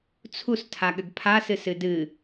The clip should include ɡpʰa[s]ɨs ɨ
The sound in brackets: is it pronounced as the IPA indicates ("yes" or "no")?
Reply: yes